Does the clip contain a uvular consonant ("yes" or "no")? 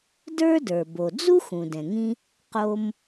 yes